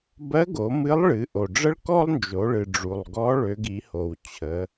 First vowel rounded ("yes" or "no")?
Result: no